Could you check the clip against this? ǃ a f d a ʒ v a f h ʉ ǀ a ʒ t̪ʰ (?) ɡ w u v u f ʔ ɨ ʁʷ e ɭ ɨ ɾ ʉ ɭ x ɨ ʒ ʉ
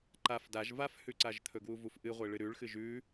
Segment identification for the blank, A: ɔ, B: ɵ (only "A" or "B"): B